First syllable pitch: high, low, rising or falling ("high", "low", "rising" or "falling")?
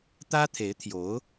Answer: high